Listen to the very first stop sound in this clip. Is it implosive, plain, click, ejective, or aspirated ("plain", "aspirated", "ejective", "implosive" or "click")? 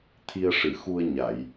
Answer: aspirated